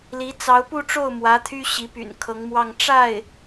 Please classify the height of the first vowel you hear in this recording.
high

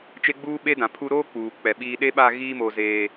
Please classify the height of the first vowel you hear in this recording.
mid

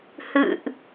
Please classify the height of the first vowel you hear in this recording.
high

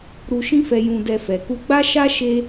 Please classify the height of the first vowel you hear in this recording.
high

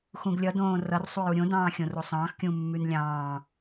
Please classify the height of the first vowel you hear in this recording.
high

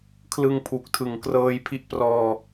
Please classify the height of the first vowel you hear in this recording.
high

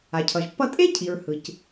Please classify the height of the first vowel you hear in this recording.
low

